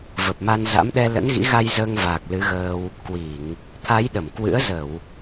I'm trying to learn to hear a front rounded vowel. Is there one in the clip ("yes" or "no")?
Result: no